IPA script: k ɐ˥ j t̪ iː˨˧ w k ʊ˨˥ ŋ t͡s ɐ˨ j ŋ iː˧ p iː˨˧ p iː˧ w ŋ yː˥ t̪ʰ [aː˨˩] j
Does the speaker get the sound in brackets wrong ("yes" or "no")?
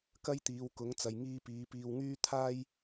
yes